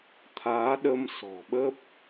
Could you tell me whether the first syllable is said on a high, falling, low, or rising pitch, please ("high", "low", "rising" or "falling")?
rising